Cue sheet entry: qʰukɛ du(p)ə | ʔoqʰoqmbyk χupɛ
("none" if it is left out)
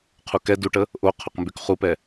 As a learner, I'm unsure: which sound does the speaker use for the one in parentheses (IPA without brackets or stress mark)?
ʈ